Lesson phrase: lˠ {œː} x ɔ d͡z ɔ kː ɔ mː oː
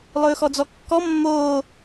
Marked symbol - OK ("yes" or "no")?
no